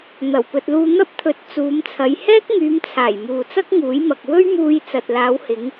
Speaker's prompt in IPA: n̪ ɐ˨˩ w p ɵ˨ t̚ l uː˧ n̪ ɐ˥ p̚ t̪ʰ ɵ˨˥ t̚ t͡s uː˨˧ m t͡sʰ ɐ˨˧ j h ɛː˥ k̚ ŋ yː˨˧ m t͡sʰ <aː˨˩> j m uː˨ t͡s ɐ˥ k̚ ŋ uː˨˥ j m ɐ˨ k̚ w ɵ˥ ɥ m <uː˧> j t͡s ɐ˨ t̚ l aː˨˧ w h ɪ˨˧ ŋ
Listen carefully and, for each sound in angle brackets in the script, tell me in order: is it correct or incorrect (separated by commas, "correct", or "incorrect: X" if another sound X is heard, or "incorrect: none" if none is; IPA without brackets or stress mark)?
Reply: correct, correct